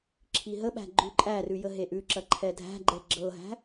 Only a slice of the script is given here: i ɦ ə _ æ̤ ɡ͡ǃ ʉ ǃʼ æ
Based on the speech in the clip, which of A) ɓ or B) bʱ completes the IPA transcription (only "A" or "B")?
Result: A